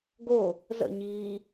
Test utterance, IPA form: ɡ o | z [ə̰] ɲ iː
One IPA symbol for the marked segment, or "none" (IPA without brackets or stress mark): ə̰